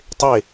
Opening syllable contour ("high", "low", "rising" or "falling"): falling